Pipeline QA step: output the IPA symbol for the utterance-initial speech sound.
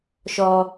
ʃ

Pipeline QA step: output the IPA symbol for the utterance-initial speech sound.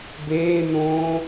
b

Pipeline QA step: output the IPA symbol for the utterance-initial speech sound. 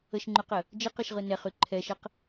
ə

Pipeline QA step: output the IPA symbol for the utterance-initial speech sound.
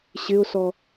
ɕ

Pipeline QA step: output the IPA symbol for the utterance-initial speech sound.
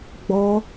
ɡ͡b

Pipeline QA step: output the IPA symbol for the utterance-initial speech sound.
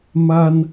m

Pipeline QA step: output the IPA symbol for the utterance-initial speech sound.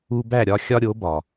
u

